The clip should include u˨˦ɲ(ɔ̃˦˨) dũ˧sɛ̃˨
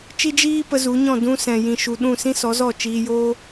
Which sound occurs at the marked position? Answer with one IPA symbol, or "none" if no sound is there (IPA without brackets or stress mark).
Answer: ɔ̃˦˨